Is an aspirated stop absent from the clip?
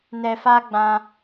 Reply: yes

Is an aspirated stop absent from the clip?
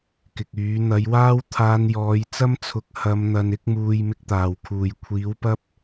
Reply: no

